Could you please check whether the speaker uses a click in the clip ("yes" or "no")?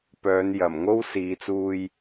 no